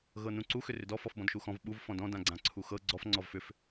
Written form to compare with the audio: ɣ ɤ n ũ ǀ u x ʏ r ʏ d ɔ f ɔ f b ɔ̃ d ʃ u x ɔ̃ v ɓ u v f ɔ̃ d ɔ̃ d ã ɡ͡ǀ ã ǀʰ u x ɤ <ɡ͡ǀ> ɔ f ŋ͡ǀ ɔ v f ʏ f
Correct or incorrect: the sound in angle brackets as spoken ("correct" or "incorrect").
correct